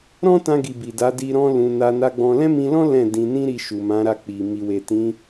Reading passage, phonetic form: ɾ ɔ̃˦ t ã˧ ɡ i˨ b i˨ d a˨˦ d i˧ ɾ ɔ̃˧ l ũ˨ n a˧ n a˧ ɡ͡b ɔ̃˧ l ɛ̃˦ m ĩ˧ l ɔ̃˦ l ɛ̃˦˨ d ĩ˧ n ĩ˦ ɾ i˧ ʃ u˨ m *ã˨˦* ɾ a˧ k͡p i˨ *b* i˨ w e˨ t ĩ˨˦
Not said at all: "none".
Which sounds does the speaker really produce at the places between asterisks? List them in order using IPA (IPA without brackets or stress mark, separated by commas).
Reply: ã˨˦, m